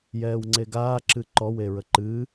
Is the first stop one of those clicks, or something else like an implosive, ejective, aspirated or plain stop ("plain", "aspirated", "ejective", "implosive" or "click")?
click